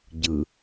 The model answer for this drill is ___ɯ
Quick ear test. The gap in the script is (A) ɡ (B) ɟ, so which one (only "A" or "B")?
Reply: B